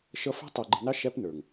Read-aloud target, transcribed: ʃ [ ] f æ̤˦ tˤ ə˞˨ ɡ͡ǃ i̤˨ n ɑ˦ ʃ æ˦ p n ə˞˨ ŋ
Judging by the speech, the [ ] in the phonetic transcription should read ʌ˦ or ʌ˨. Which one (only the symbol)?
ʌ˦